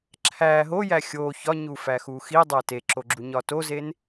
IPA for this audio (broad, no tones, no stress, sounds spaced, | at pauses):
ǁʰ æ ɦ o j æ xʲ o ç ɒ ɲ u f æ x u x i dˤ æ t e ǁ o ɡ͡ǁ u ɲ ɒ t o z e n